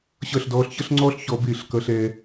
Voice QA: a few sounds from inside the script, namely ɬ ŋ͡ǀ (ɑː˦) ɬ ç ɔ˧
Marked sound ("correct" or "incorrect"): incorrect